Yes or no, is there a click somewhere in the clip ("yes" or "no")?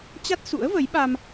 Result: no